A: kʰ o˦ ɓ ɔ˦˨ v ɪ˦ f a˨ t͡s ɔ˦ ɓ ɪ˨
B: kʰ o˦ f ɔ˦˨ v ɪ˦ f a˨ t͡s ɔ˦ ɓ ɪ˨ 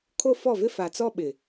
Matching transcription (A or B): B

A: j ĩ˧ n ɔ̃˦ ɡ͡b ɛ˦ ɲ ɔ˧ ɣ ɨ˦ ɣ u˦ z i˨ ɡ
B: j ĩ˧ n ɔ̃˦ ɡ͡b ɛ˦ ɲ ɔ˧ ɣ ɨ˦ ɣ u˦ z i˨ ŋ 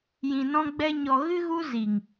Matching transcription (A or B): B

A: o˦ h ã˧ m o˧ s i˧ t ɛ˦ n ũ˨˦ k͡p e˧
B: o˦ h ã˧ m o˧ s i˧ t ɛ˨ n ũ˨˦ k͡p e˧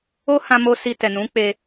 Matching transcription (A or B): B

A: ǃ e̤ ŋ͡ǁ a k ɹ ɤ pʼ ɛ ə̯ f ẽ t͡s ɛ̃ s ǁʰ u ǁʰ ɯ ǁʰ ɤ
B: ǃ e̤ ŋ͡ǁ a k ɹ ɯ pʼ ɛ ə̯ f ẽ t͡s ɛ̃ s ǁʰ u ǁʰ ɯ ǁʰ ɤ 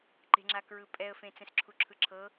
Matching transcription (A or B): B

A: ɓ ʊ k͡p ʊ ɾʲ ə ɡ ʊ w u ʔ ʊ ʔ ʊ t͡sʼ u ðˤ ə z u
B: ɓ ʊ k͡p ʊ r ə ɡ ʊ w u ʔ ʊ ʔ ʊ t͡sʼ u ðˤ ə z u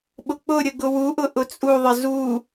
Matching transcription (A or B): A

